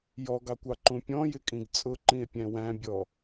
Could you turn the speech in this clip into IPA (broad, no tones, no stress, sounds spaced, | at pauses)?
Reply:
j ɔ ɡ ɑ kʷ ɑ ǃ ũ pʲ ɔ̃ j ɪ kʼ ĩ ɡ t͡sʼ ʊ ǃ ĩ e̯ pʲ æ̃ w æ̃ bʲ ɔ